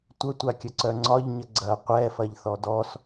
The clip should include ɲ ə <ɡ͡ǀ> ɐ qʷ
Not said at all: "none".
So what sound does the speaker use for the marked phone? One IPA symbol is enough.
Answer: ɡ͡ǀ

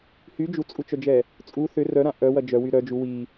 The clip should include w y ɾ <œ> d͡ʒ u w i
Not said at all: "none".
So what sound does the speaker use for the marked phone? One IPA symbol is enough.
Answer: œ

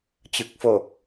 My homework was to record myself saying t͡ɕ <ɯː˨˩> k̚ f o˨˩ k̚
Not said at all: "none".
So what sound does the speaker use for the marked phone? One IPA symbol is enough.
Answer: ɯ˨˩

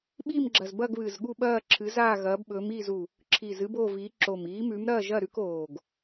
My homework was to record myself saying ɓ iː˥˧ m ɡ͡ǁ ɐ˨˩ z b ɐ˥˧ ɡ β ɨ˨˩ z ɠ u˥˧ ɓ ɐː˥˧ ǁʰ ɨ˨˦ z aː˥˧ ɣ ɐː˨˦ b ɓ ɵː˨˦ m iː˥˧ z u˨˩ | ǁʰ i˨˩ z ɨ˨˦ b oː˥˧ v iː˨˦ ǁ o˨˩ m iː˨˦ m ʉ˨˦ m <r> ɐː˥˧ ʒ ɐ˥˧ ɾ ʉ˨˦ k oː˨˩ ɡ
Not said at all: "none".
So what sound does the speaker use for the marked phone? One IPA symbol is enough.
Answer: ɾ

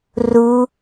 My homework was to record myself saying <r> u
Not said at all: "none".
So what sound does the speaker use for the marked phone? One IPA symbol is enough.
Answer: r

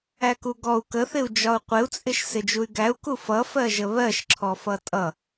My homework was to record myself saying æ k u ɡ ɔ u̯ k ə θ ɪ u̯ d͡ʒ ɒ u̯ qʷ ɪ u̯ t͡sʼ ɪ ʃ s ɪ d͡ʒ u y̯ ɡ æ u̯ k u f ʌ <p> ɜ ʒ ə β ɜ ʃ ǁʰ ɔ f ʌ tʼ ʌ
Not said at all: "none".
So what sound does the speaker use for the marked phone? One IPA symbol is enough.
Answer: f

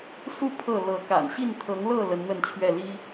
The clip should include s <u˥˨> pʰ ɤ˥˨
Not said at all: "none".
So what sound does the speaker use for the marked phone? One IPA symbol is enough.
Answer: u˥˨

